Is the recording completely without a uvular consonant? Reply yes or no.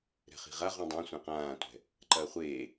no